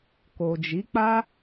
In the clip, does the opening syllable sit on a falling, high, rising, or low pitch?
low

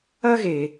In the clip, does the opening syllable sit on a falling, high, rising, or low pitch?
high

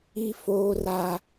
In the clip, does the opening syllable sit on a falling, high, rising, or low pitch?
high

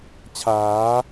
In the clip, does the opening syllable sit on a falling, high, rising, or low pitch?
rising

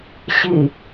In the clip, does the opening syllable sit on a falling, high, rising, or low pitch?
low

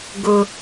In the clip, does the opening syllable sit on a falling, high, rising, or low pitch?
low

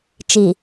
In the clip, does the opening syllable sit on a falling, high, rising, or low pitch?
low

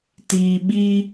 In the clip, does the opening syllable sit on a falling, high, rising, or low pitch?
low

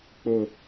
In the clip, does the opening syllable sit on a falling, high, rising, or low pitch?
low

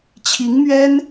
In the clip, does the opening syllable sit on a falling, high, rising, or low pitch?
rising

